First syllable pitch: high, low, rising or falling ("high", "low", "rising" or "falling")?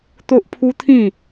high